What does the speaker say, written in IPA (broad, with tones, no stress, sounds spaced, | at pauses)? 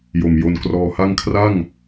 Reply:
j o˨˩ m j o˧ n k r ɔː˧ h a˥˩ ŋ kʰ r a˥˩ ŋ